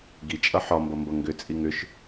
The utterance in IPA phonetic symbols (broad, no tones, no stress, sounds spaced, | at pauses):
ɡ i t͡ʃʼ ʌ ħ ɒ m b ʌ m b ʌ ŋ ɡ ʏ t͡sʼ i ŋ ʏ ʃ